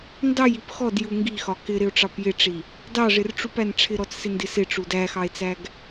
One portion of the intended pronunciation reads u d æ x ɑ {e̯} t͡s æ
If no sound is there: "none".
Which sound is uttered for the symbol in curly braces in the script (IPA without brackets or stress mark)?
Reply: e̯